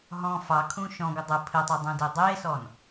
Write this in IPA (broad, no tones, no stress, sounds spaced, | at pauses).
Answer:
ɦ ɔ̃ f ɑ kʰ ũ ʃ ɔ̃ ɡʷ ə dˤ ɘ pʰ ɘ tˤ ɑ dˤ ũ d e dˤ e s ɔ n